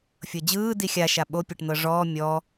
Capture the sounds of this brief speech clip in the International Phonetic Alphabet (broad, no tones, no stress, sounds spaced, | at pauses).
fʲ ɤ d͡ʑ ɯː d i xʲ a ʃ a ɓ o pʲ e ʈ n̪ ɤ ʐ ɔː mʲ ɔ